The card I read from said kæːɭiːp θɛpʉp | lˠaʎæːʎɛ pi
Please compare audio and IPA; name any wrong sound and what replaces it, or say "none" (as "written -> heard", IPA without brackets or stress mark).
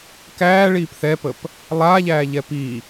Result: ʉ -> ə